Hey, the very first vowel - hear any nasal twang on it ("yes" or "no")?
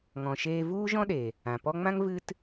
yes